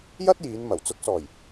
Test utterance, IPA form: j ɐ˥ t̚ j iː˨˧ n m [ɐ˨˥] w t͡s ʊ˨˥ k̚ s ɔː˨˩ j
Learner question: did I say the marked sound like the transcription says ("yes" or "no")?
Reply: no